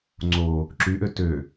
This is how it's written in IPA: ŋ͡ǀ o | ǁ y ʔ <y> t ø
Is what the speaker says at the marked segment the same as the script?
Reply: no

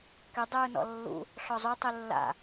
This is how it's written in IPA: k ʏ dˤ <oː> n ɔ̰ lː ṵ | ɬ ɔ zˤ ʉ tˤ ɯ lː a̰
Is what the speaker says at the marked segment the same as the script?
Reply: no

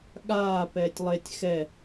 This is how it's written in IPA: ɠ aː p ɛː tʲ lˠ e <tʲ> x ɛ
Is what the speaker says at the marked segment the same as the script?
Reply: yes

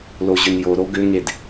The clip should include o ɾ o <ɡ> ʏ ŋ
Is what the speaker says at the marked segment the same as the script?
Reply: yes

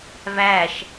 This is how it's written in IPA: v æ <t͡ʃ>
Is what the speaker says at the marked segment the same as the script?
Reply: no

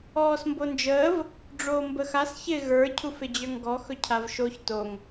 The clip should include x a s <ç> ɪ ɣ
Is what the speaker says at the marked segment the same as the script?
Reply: yes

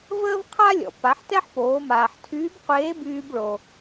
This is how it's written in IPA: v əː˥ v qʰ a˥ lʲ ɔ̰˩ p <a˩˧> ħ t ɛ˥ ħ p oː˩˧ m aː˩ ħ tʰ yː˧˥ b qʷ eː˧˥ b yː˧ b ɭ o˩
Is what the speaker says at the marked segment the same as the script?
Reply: yes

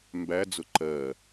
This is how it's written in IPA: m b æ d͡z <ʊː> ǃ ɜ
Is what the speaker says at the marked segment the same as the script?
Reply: no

